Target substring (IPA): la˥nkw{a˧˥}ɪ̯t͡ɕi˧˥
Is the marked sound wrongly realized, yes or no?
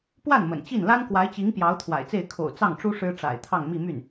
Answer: no